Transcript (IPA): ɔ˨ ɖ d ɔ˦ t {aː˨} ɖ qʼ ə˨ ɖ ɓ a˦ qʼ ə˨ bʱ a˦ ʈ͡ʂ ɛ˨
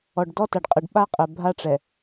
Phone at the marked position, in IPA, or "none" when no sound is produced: a˨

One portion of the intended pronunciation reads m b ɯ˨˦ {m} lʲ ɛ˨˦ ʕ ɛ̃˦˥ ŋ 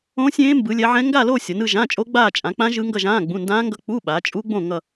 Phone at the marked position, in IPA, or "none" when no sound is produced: none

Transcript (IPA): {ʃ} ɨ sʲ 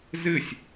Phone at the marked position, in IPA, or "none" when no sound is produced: z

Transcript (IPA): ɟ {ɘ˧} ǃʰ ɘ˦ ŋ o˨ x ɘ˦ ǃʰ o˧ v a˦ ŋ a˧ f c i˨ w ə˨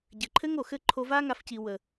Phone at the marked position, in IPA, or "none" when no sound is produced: ɘ˨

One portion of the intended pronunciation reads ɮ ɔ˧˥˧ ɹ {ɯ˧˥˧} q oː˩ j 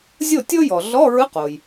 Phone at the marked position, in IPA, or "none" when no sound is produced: ɯ˧˥˧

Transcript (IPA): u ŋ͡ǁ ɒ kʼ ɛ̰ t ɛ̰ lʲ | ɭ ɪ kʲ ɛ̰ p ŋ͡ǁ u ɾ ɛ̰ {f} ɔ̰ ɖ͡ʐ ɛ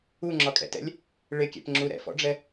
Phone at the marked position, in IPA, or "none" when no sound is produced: f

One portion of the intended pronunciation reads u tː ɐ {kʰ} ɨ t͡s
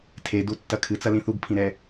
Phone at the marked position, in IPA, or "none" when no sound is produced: kʰ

